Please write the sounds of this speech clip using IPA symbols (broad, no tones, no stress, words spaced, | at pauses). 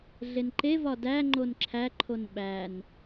ɮenǃevɒ dæ ŋ͡ǃonǁʰæǃʰon ɓæn